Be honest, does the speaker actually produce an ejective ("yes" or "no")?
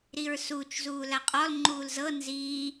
yes